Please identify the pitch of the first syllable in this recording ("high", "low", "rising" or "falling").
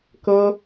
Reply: high